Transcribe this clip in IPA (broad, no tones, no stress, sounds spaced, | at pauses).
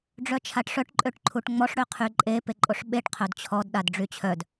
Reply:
ɖ͡ʐ œ t͡ʃʰ a ʈ ʂ œ ʈ ǃʼ ø ʈ ǃʰ u ʈ ŋ͡m ɔ ʂ ɽ ø qʰ y ǃʼ e p e ǃʼ o ʂ ɓ e ʈ qʰ œ d t͡ɕʰ ɔ d ɗ a d ɖ͡ʐ y t͡ɕʰ œ d